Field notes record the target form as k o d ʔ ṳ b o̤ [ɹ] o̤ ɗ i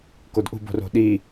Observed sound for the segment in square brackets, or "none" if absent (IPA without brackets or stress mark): r